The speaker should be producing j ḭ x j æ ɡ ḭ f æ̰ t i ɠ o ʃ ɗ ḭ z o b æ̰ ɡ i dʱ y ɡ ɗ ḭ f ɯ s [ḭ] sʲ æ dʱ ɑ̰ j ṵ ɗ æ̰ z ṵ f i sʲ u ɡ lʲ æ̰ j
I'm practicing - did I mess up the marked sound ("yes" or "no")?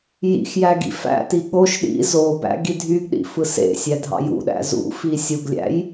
yes